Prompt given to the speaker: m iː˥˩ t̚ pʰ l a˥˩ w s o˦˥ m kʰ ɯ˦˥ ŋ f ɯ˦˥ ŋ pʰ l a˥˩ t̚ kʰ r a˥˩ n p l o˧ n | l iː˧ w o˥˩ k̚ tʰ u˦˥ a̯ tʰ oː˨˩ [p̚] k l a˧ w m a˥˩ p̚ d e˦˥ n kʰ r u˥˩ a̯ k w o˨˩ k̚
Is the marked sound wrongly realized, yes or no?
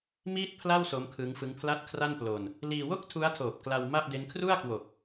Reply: no